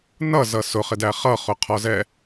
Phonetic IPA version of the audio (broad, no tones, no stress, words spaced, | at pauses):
nʌzʌ sʊχɪdæ χʌχʊqʰɒzɛ